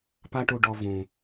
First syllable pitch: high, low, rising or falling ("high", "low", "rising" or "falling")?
high